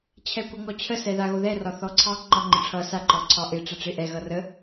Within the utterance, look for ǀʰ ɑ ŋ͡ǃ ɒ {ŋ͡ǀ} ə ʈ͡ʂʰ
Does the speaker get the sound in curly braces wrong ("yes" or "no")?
yes